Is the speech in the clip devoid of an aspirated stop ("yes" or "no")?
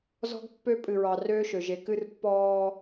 yes